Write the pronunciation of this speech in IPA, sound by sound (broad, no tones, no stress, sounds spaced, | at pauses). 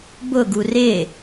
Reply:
b ʊ ɡ u r ɪ